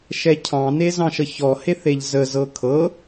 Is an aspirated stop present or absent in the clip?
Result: present